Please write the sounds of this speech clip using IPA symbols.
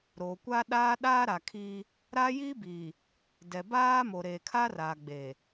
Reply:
ɾ oː˨ kʷ aː˦ ɗ aː˦ ɗ aː˦ ɾ a˨ kʰ iː˦ | ɾ a˦ j iː˦ b iː˨ | d ɛ˨ b aː˦ m o˨ ɾ eː˨ kʰ a˦ r aː˨ ɡ͡b eː˨

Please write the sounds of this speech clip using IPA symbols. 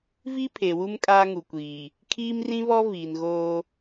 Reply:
v i˦ pʰ e˨ w u˦ m kʼ aː˦ ŋ u˨ kʷ iː˨ | kʰ iː˦ m r ĩ˦ β ɔ˦ v iː˨ n ɣ oː˦

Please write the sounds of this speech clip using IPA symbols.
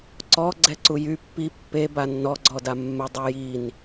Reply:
ǀ ɔ ɡ͡ǀ ɛ ǀ u j y pː i pː e b a nː ɔ ɡ͡ǀ ɔ d a mː ɛ dˤ a j i n

